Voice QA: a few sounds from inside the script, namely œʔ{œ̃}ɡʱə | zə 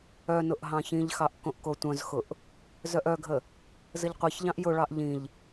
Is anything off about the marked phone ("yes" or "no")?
yes